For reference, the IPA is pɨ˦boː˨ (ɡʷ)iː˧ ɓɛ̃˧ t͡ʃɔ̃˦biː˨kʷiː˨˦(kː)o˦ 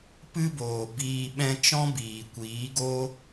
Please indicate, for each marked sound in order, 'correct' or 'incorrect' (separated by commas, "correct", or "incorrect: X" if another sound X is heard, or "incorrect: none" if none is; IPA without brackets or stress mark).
incorrect: b, incorrect: ɡ